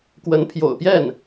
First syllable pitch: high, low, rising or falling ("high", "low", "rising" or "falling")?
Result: rising